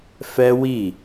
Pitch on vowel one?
high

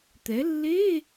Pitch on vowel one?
rising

